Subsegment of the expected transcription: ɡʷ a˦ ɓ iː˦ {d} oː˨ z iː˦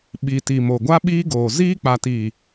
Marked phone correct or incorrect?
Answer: incorrect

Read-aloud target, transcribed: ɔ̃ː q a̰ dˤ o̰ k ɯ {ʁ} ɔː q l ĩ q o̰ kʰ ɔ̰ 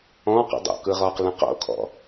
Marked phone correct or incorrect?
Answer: correct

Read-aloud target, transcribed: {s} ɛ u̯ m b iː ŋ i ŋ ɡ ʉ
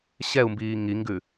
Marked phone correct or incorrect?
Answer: incorrect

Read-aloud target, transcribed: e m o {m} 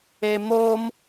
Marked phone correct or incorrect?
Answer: correct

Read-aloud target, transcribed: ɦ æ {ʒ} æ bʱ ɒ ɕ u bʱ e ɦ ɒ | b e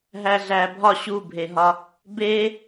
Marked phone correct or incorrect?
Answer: incorrect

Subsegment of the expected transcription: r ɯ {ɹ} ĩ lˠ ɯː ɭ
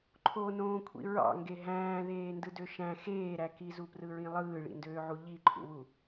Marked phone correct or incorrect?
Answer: correct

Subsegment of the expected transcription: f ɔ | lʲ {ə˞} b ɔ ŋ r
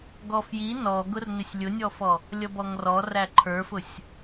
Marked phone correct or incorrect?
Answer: incorrect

